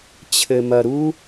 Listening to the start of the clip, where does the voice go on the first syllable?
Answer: low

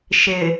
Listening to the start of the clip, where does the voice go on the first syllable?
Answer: low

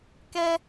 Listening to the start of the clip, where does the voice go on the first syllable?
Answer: high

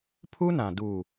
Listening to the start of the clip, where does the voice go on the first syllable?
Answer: high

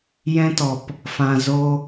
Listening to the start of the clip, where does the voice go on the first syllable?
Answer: high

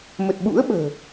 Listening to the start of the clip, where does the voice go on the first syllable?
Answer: low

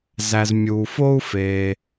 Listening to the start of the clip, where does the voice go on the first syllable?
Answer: low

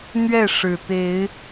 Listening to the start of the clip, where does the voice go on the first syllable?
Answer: falling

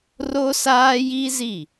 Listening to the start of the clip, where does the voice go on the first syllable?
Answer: high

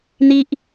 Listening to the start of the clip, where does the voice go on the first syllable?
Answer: high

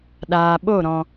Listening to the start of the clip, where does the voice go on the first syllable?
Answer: low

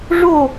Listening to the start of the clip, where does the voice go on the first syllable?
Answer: falling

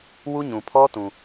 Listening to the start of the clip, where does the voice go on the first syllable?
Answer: high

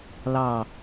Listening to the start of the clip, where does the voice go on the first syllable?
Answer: low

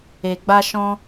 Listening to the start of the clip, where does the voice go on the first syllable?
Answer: low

